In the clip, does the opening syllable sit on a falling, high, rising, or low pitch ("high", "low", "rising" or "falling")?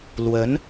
rising